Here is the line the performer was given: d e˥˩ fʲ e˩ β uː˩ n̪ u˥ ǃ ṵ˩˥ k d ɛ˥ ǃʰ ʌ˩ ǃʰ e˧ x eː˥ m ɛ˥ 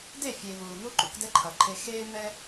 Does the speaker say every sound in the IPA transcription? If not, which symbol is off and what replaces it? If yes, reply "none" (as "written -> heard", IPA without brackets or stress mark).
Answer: none